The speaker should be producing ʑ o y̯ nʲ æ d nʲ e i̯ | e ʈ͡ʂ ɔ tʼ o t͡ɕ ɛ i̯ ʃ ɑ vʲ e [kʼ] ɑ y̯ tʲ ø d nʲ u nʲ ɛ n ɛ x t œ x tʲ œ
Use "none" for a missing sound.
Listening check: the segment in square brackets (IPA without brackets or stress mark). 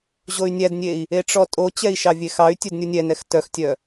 x